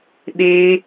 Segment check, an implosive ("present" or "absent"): present